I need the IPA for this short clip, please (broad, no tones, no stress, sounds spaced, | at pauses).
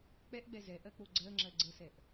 k͡p ɛ ʔ ɡ͡b ɛ z ɛ ʔ ɜ k͡p o ɡ͡ǀ ɜ ŋ͡ǁ ɜ ɡ͡ǀ ə s ɛ ʔ